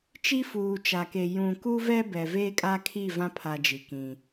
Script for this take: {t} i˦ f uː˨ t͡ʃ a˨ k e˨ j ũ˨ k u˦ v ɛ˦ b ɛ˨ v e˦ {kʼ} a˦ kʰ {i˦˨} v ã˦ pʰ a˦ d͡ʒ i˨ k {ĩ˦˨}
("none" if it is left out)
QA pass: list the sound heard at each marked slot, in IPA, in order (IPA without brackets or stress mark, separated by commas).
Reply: t͡ʃ, kʼ, i˦˨, ĩ˦